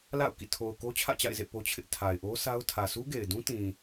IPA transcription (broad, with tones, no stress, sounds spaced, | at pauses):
l a̰˦˨ ʊ̯ k ḭ˦˨ tʰ o˨ ʊ̯ k o˦ t͡ɕʰ ä̰˦˨ t͡ɕ a̰˦˨ ɪ̯ z ḛ˦˨ p o˦ t͡ɕʰ ɪ˦ ʔ tʰ a˨ ɪ̯ ʔ o˦ sʰ a˦ ʊ̯ tʰ ä˨ s u˦ ɡ e˨ ɪ̯ d ũ˦ t ĩ˨